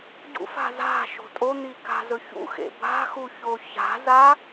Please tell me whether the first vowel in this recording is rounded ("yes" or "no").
yes